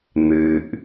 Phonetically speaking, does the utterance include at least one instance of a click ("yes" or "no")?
no